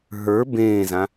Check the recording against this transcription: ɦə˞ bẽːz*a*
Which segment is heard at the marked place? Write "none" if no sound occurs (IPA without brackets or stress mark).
ã